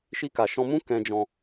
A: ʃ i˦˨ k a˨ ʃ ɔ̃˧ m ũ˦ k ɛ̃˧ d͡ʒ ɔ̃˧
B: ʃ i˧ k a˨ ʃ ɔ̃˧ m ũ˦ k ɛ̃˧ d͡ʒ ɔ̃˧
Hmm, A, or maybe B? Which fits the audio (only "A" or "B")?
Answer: B